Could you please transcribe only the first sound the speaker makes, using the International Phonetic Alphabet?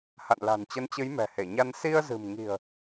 h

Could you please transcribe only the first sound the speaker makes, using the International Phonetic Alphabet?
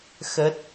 x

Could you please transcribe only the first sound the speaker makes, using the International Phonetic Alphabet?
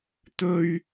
t̪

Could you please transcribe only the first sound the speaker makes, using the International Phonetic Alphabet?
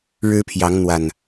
ɻ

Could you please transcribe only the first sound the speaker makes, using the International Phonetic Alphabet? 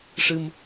ʂ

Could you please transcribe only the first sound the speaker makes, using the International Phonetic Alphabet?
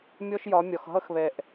mʲ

